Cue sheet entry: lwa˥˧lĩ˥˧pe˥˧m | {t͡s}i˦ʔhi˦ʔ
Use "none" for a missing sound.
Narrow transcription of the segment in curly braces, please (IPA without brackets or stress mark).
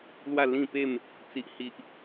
t͡s